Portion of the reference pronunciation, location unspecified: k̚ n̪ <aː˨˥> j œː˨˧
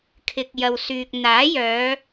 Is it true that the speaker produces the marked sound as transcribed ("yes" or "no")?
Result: yes